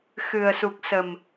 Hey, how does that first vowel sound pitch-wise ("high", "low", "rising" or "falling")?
low